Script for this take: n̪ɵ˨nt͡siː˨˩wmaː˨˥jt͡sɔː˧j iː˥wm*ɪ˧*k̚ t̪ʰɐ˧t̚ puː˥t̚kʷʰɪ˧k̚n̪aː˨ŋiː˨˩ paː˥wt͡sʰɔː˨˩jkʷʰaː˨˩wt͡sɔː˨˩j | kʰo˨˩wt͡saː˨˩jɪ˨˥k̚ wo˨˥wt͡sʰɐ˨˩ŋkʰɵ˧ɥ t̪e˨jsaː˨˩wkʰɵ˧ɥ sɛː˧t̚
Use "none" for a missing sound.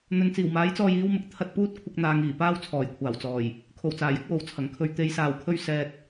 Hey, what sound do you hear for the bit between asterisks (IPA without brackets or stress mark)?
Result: ɪ˧